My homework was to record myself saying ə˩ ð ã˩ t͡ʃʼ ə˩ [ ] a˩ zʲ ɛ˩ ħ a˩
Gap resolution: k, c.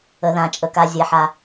k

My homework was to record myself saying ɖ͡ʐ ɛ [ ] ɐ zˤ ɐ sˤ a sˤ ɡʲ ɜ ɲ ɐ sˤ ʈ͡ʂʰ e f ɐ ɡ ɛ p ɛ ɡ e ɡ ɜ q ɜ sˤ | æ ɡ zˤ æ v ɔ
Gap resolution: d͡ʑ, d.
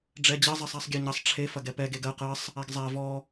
d͡ʑ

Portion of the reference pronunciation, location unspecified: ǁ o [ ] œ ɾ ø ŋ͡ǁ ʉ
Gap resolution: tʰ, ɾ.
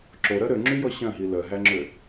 ɾ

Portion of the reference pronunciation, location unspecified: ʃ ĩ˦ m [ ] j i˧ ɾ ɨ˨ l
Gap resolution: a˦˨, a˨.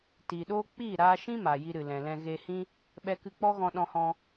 a˨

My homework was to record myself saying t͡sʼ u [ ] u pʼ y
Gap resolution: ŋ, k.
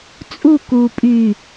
k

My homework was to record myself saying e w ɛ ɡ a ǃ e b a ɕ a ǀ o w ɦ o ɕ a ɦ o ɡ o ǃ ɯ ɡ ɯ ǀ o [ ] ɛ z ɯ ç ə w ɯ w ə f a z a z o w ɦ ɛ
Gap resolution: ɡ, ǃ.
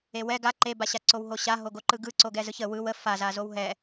ɡ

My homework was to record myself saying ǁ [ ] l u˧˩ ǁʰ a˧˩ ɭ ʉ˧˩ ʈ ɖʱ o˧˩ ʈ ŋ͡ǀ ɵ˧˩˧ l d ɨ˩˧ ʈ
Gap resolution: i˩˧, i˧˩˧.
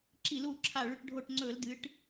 i˧˩˧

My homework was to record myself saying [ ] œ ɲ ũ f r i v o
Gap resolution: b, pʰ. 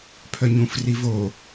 pʰ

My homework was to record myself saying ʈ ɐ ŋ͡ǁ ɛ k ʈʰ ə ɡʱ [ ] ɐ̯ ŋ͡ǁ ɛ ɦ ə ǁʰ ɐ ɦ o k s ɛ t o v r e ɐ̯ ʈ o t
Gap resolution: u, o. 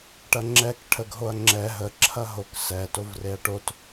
o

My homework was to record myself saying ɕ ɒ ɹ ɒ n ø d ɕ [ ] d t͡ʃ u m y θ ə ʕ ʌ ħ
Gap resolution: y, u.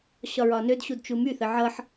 u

